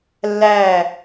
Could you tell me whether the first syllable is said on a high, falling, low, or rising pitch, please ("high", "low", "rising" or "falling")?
falling